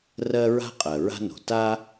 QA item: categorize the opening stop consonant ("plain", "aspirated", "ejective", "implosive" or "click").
ejective